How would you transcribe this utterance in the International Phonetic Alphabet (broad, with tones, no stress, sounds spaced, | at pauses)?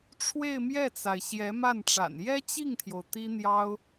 ʈ͡ʂʰ w e˥˧ ɪ̯ m j ɛ˥˩ t͡s a˩ ɪ̯ ɕ j ɛ˧˥ m a˥˩ n ʈ͡ʂ a̰˨˩ n j ɛ˥ t͡ɕ i˥˩ ŋ t̪ʰ j o˩ ʊ̯ t̪ i˥ n̪ j ɑ˥ ʊ̯